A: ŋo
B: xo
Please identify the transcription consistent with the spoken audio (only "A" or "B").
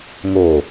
A